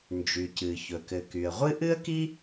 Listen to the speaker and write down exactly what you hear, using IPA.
n d͡ʒ y˩ c ɨ˩ ç ɵ˩ k ɘ˩ k y˩ ə̯ ʁʷ ɨ˥ ʔ ɨ˥ ə̯ k i˥

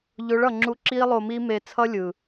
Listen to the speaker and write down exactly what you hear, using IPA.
ʎ o˨˦ ɭ ʌ˨ ŋ͡ǁ u˧ ǁ i˦ lˠ o˧ m i˦ m e˧ t͡sʰ ʌ˦ lʲ ɯ˨

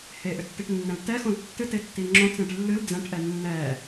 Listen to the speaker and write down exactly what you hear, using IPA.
h e ʔ ʏ tː i ʈ nː ɛ̃ l t ɛ x õ l tː ɨ t e tː i ŋ͡ǁ õ t͡s ẽ ʈ lː ɨ l d͡z ɛ̃ ʈ ʔ ɛ nː ɛ

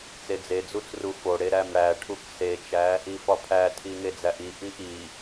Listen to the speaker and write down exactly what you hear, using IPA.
t͡s e d͡z e d͡z u t͡s r u f o ɽ e ɾ æ m ɽ æ ʈʰ u k s e t͡ʃ æ | i f ɒ pʰ æ tʰ i ŋ e d͡z æ ʔ i ʔ i ʔ i

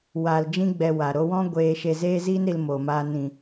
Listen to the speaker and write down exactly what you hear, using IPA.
w aː˧ l d͡ʒ ĩ˦ ɡ͡b ɛ˧ w a˨ ɾ o˧ w ɔ̃˦ ɡʷ eː˧ ʃ e˧ z eː˦ z iː˦ n ɾ i˧ l m oː˨ m aː˧ n ĩ˨

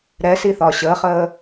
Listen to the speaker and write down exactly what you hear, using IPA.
ɾ ɛ s i θ ɒː ɕ əː χ əː

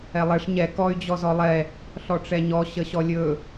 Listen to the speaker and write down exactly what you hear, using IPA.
ɛ lˠ ɛ ʂ ɲ ɛ k ɔ y̯ d͡ʑ ɔ z ɔ lˠ ɛ | ɬ ɔ ʈ͡ʂ ɛ ɲ ɔ ɕ ə ɕ ɔ lʲ ɵ

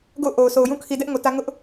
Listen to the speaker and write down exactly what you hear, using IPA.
ɡ o̰˦˨ ʊ̯ ʔ o˨ ʊ̯ s o˨ ʊ̯ j ũ˦ kʰ i˨ d ɛ˦ ʔ ŋ o˨ t ä˦ ŋ ʊ˦ ʔ

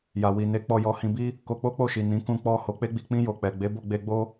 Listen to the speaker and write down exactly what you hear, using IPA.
j a˨ w i˨ n e˨˦ k͡p ɔ˧ j ɔ˧ h ĩ˧ b i˦ | k o˧ k͡p o˦ k͡p o˦˨ ʃ i˨ n ĩ˨˦ k ũ˧ k͡p ɔ˧ h o˨ k͡p e˧ ɡ͡b i˨ k͡p ĩ˧ j o˨ k͡p ɛ˨ ɡ͡b e˨˦ b o˦˨ ɡ͡b e˧ ɡ͡b o˦

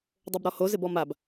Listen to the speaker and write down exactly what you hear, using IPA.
dˤ o b ɾ ɔ h o z ɪ b ɔ m a b

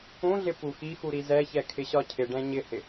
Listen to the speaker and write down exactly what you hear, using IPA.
ũ ɮ ɪ p u x i x u ɾ i z ɛ ç ɛ kʰ ɪ ɕ ɒ cʰ ɪ ɖ ɛ̃ ɲ ɪ h ɪ

